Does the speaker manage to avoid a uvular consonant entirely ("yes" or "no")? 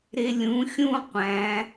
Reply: no